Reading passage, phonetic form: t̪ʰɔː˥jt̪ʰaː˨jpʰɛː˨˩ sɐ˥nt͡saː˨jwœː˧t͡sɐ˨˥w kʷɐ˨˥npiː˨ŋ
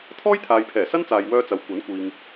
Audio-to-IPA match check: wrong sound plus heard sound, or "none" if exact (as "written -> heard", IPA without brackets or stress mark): p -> kʷ